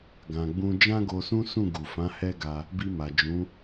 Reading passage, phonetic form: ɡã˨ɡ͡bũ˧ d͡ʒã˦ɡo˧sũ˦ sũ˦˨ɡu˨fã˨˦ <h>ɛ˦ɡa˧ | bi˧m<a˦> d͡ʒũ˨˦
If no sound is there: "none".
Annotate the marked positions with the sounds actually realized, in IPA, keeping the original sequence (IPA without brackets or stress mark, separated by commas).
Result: h, a˨